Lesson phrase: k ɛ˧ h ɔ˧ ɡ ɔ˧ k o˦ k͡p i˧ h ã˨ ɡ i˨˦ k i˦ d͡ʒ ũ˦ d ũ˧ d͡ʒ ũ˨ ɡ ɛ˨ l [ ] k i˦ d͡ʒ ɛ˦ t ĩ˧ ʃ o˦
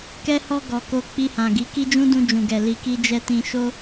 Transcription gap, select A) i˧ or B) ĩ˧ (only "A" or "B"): A